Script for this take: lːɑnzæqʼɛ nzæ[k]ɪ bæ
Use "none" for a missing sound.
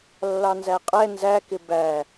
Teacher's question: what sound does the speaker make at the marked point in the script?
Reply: k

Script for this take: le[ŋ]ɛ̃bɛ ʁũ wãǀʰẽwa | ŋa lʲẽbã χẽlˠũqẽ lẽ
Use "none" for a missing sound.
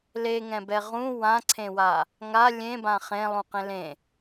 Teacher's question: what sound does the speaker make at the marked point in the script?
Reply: ŋ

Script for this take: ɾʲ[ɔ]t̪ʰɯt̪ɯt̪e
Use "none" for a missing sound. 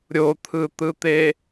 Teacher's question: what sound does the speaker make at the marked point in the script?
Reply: o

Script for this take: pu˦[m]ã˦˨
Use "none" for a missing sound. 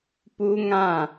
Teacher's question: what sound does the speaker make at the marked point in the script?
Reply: ŋ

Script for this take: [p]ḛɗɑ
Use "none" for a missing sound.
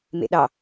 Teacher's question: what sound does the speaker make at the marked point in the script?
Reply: m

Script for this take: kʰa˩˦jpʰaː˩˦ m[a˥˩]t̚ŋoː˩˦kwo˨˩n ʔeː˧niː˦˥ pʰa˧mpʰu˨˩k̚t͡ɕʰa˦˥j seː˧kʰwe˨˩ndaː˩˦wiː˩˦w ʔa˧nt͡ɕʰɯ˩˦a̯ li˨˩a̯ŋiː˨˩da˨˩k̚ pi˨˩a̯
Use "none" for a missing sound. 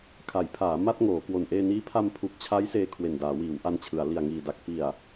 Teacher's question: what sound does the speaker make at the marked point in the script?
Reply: a˥˩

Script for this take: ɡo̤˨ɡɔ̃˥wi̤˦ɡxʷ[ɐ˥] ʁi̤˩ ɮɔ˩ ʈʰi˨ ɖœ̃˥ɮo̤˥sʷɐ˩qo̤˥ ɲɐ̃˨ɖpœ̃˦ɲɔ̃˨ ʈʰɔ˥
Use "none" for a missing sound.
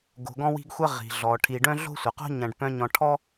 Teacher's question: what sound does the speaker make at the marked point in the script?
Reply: ɐ˥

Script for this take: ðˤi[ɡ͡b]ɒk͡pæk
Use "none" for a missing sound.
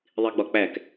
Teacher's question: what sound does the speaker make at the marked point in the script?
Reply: ɡ͡b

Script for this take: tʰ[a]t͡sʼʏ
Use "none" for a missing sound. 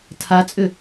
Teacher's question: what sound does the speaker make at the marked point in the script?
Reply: a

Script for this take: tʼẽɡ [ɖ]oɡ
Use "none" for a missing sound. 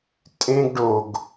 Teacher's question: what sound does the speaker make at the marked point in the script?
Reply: ɖ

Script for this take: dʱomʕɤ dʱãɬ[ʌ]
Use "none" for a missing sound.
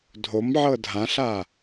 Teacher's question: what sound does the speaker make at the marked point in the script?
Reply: a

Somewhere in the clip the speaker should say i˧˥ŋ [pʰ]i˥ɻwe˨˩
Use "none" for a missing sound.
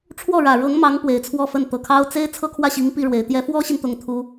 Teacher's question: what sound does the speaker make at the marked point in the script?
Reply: p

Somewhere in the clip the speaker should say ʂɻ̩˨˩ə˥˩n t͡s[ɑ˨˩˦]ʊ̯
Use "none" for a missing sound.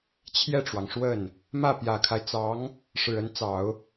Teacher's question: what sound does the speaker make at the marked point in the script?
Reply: ɑ˨˩˦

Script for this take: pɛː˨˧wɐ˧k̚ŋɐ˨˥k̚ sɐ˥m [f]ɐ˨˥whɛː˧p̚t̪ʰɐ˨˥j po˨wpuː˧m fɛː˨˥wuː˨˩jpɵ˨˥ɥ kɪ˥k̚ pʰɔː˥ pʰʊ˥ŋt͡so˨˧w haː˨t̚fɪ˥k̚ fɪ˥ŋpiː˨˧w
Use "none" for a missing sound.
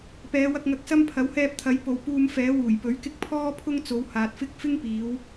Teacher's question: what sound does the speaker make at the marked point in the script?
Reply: pʰ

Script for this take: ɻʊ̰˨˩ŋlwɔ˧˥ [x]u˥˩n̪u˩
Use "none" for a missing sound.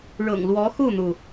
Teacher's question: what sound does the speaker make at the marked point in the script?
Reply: x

